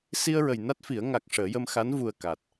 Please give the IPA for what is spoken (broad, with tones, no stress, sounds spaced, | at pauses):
s i˧ ə̯ ɹ ə˨˩ j n a˦˥ t̚ f i˨˩˦ ə̯ ŋ a˨˩ k̚ ʂ əː˨˩˦ j ə˧ m x a˧˥ n v u˨˩ ə̯ k a˨˩ t̚